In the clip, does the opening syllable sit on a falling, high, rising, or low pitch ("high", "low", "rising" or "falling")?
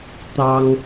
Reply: high